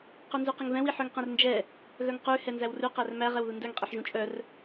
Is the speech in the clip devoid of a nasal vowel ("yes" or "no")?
no